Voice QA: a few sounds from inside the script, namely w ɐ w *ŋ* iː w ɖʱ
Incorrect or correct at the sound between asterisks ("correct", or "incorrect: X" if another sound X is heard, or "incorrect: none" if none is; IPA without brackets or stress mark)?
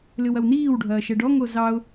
incorrect: n